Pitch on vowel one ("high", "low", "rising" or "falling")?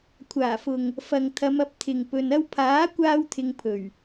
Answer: low